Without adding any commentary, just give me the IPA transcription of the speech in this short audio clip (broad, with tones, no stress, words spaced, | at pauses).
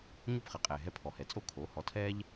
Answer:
ɲo˥˩pχɛ˩˥qʼɛː˩ ɦɛ˧pʰɔ˩hɛ˩ t͡sʼo˥˩kʰoː˩˥ hɔ˩˥tʰɛː˥ʎ